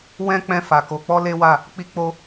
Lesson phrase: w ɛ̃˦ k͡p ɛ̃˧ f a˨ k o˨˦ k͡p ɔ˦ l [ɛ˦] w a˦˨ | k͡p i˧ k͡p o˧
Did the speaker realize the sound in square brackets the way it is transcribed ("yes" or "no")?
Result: no